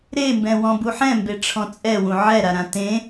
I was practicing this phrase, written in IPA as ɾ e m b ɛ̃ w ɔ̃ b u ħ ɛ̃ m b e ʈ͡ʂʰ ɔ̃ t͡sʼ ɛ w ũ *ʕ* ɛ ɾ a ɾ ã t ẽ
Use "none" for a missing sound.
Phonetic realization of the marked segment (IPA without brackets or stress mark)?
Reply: ʕ